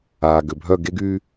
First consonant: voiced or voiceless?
voiced